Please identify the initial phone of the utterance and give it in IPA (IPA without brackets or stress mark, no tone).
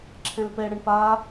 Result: ǁʰ